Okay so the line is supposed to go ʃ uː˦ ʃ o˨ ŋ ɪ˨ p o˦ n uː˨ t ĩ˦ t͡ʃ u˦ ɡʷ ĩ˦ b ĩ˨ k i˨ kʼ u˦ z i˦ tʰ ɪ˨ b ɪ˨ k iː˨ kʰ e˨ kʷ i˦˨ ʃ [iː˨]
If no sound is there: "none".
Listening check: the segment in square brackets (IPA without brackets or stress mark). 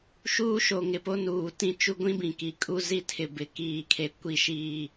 iː˦˨